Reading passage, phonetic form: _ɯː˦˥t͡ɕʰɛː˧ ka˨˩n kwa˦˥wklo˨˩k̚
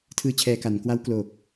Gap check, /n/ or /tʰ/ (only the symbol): tʰ